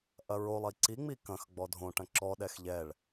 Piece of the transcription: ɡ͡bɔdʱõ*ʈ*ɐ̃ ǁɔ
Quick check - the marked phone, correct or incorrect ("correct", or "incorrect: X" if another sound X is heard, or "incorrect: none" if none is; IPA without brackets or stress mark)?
correct